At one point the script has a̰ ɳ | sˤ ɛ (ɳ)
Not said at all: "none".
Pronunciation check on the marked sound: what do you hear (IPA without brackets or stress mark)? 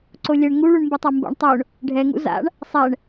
ɳ